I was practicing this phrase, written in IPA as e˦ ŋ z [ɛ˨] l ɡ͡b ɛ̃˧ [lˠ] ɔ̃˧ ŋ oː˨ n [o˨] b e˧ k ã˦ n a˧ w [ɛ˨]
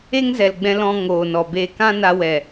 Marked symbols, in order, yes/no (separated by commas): yes, no, no, yes